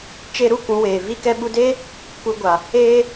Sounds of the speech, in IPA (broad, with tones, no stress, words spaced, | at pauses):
t͡ʃe˧ɾu˦ kũ˨˦weː˨ vi˧kɛ˧ɓu˧deː˦ | kʷɨ˧ɡʷa˨ | eː˦